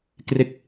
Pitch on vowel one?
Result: falling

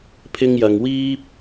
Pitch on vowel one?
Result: high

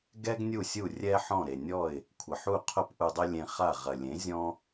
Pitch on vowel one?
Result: high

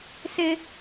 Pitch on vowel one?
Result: high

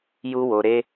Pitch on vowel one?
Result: high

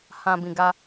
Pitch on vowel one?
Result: low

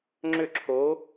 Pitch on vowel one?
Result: falling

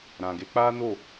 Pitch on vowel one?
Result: low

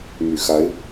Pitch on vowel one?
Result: low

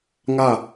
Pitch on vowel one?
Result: falling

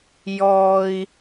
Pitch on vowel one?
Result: high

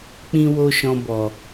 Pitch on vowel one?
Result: high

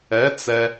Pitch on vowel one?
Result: rising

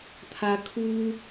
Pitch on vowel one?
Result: high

